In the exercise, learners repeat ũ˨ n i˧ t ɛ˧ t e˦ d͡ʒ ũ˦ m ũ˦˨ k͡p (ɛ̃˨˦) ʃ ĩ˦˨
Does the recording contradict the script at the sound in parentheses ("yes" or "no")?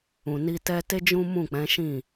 no